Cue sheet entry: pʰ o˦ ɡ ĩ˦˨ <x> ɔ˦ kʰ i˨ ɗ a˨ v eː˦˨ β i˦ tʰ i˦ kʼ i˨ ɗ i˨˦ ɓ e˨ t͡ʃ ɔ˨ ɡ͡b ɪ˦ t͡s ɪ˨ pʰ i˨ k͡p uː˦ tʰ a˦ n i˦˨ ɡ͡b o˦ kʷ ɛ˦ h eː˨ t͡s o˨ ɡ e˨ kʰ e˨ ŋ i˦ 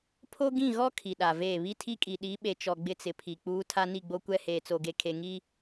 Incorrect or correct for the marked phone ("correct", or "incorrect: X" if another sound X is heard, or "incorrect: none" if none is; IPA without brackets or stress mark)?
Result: incorrect: ɣ